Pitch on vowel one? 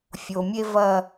low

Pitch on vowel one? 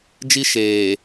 high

